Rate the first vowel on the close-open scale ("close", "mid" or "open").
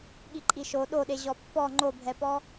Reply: close